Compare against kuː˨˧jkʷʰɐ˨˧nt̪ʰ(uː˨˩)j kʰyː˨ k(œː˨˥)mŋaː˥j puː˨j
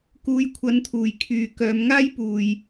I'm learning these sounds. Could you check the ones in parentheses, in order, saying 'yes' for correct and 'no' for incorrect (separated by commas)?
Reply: yes, no